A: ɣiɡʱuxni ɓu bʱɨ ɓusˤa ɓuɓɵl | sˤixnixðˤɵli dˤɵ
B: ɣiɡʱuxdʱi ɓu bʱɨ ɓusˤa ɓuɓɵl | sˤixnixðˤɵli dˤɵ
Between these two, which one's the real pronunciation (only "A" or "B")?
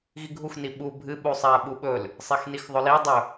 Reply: A